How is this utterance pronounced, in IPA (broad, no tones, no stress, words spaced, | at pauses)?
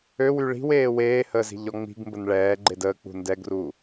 øwy ɭi̤w eːweːhəːz i̤ʎɔŋ͡mi̤ɡmbən ɭɛːɡ͡ǃed əːk͡pṳ ndɛɡru